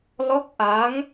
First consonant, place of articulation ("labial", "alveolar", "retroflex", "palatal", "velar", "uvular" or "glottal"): alveolar